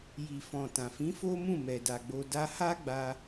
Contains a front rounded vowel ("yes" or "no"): no